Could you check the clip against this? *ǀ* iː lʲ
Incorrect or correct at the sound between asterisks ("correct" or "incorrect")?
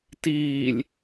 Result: incorrect